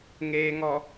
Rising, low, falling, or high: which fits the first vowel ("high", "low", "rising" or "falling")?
low